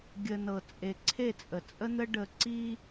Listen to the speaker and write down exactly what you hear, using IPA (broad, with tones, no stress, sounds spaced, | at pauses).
ɡʲ ə˨ n ɤ˨ t͡sʼ e˨ ǀʰ e˦˨ t͡sʼ ə˨ t͡sʼ ə˦ n̪ ə˦ ɖ ə˨ ǀ i˦